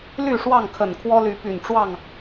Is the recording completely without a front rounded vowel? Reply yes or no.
no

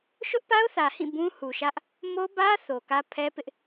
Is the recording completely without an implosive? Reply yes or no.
yes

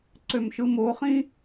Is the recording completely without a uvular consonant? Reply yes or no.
no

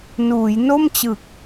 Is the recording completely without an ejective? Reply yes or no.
yes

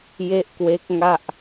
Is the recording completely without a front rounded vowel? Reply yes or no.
yes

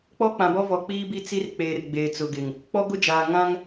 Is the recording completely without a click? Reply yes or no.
yes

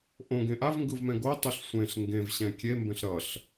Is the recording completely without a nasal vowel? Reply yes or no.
no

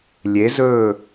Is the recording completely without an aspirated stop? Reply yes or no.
yes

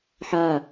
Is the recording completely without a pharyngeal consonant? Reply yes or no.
no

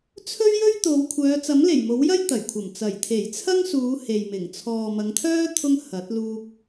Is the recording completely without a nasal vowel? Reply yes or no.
yes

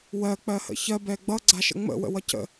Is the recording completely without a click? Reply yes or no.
no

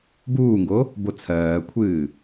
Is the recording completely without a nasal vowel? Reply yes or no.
yes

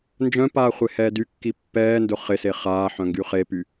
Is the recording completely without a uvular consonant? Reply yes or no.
no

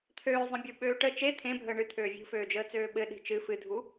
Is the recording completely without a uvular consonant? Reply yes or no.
yes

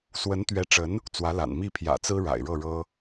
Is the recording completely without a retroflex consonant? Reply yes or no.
no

